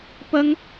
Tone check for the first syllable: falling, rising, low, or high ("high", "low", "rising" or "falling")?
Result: high